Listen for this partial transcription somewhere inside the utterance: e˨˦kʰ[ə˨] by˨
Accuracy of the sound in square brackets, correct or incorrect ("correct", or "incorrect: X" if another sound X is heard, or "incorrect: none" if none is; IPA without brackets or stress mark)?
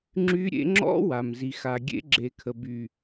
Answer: correct